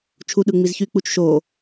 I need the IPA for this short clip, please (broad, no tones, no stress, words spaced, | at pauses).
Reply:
t͡ʃʰuɗɯ ŋ͡mizçyk͡put͡ʃ ʃo